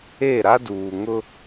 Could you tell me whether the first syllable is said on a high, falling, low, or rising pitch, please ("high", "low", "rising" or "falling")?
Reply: falling